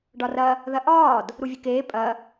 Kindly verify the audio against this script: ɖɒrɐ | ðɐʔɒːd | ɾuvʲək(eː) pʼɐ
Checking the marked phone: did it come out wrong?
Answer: no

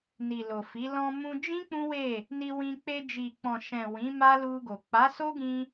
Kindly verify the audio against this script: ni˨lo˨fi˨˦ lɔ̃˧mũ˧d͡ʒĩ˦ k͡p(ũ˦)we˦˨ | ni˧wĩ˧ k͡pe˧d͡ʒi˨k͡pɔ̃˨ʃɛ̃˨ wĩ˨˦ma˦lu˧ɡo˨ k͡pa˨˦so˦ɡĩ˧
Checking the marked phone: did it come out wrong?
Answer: no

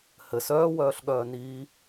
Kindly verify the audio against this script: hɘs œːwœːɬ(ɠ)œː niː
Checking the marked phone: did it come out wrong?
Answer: no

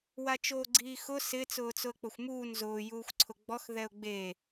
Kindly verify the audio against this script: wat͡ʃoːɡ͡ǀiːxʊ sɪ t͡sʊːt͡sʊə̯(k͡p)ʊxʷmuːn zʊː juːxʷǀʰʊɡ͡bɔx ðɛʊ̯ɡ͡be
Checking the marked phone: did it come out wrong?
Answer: no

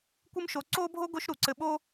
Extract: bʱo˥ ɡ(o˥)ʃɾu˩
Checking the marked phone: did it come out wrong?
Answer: no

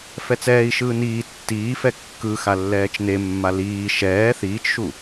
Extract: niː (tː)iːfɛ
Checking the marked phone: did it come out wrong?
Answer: no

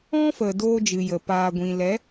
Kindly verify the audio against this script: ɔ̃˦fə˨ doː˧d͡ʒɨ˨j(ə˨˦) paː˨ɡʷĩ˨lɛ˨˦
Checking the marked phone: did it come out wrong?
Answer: yes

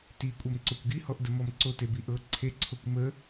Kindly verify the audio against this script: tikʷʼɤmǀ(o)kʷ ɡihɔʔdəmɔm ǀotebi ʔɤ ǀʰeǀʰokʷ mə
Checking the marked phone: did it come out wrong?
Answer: no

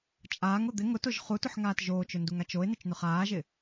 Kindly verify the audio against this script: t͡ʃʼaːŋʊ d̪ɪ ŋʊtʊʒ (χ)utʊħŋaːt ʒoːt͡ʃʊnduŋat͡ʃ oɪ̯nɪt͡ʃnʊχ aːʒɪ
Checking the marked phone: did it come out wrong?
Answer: no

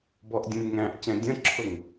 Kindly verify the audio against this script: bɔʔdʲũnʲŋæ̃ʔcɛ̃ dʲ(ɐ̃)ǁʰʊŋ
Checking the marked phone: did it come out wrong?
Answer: yes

